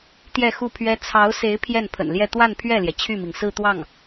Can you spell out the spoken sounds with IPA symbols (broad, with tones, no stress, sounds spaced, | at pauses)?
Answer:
t̪ j ɛ˥˧ x u˥˩ pʰ ɥ ɛ˥ t͡sʰ ɑ˧˥ ʊ̯ s e˧˥ ɪ̯ pʰ j ɛ˥˩ n pʰ ə̰˨˩ n l j ɛ˥˧ t̪ w a˥˧ n pʰ ɥ ɛ˥˩ l j ɛ˩ t͡ɕʰ y˥˩ m i˩ ŋ s ɹ̩˥˧ t̪ w ɑ˥˩ ŋ